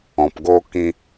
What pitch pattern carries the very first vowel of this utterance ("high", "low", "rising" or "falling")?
low